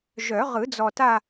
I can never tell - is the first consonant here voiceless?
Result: no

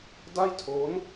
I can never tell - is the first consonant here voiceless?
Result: no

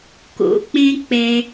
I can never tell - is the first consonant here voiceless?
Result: yes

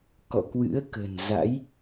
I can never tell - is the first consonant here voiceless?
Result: yes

